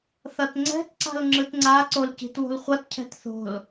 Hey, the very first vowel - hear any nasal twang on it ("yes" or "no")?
no